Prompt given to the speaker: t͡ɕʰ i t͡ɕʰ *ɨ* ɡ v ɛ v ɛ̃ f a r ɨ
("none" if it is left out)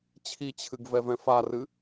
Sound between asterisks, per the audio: ɨ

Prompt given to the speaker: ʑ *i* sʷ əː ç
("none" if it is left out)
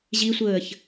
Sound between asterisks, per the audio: i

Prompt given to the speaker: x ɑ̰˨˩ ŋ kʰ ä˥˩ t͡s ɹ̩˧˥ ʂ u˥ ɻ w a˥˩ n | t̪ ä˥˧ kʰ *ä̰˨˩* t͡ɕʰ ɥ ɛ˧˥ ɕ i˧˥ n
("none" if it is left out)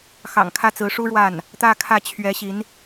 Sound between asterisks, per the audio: ä˥˩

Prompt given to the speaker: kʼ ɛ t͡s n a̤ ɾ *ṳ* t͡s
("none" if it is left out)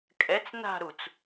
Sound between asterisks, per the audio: u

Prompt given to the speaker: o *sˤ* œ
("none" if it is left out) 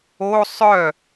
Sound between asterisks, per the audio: sˤ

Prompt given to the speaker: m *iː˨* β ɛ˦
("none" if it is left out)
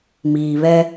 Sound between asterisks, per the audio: iː˨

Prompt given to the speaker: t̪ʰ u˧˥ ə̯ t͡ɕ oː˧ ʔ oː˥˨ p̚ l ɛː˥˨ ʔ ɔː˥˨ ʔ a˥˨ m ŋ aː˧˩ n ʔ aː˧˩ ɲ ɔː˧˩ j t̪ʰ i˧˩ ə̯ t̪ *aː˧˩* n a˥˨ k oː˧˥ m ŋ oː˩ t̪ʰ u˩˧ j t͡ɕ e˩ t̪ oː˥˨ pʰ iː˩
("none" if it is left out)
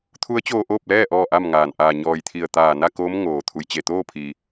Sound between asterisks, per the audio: aː˧˩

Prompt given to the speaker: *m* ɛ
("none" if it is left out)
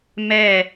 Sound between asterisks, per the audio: m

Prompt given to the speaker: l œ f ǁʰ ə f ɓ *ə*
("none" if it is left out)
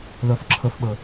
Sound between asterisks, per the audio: ə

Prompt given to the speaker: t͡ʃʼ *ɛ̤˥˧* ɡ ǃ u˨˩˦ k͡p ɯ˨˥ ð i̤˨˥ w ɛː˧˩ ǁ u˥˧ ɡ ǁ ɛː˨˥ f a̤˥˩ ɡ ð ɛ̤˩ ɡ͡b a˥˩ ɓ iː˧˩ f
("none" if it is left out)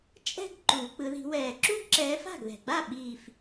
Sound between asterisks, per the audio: ɛ̤˥˧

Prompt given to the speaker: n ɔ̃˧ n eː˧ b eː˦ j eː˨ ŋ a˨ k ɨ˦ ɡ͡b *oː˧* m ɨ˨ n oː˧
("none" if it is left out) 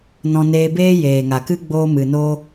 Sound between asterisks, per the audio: oː˧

